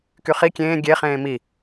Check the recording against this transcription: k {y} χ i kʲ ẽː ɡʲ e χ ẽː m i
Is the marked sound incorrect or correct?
correct